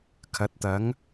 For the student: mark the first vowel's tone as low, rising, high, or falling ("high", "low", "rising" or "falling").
rising